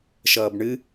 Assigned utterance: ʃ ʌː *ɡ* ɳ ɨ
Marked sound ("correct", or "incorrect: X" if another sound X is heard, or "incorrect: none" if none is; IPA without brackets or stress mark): incorrect: b